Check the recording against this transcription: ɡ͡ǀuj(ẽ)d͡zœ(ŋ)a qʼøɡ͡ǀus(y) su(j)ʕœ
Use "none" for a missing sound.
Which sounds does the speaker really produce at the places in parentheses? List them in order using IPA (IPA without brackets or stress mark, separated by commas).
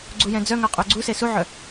ɛ̃, ŋ, e, none